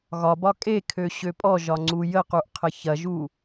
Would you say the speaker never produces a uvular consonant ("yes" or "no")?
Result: no